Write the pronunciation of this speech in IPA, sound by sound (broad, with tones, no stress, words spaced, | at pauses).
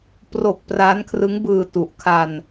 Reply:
pro˨˩k̚ praː˦˥nkʰrɯ˦˥ŋ bɯː˧ tu˨˩ʔkʰa˧n